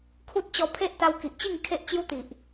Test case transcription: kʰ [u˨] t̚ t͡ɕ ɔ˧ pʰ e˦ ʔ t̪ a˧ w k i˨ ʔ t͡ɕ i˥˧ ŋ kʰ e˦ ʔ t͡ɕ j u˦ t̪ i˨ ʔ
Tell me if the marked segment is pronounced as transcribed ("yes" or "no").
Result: no